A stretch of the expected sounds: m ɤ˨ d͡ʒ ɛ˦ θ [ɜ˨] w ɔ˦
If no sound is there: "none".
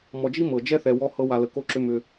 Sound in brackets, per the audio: ɛ˨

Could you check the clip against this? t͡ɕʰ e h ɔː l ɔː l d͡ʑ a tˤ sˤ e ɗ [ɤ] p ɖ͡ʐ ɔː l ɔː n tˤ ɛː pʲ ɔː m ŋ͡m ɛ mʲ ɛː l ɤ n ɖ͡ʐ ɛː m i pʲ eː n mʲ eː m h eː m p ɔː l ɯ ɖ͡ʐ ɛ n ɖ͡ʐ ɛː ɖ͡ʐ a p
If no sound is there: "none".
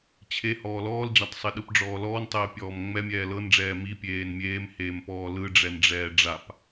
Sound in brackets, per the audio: ɯ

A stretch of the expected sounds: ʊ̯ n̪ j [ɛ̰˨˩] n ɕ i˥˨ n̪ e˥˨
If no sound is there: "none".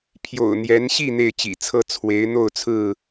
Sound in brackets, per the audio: ɛ˨˦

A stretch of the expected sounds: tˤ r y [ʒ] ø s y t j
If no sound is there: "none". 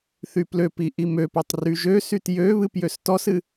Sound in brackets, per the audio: ʒ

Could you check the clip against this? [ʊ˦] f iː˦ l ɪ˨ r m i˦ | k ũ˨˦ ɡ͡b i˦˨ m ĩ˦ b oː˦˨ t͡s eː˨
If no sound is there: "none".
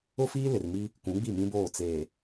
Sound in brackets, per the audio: ʊ˦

